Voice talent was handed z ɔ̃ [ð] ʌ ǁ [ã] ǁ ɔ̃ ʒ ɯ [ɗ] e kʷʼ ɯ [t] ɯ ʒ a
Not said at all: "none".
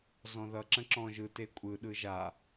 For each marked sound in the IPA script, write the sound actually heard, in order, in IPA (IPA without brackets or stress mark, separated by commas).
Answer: ð, ə̃, t, ɗ